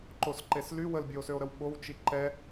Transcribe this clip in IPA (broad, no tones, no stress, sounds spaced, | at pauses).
ǃ o s ǃ e s l y w ə l bʲ ø o̯ s ø o̯ ɾ ə w ɓ o w t͡ʃ i ǃ ɛ